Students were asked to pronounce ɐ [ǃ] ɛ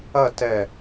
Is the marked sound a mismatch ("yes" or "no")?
yes